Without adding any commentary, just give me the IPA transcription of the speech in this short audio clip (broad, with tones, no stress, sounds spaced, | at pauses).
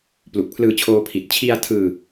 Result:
p l u˨˩ k̚ pʰ l ɯː˧ t͡ɕʰ oː˧ pʰ i˨˩ t̚ t͡ɕʰ i˧ a̯ tʰ ɯː˧